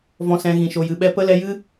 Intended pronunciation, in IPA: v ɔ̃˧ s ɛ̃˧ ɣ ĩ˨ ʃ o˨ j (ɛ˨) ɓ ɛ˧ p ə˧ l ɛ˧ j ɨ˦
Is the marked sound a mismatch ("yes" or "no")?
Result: yes